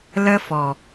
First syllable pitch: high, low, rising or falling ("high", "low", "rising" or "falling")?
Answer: high